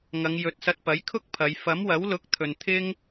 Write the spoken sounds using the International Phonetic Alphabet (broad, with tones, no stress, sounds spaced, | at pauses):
ŋ ɐ˨˧ ŋ j ɵ˨˥ t̚ s ɐ˧ t̚ p ɐ˨˥ j kʰ ʊ˥ k̚ pʰ ɐ˨˧ j f ɐ˨˥ m w ɐ˨˥ w l ʊ˨˥ k̚ t̪ʰ ɵ˨ n t̪ʰ ɪ˧ ŋ